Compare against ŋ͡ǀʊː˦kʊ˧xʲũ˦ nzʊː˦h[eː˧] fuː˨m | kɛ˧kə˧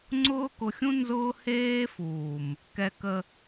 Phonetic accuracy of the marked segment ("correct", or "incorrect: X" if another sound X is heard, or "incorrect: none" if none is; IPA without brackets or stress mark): incorrect: eː˦